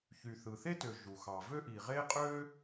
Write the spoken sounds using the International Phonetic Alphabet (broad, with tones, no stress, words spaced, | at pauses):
çy˩θɯ˩θe˥tø˩ ʒu˩xɑ˩ vø˥ʔi˩ʁe˥qʼø˥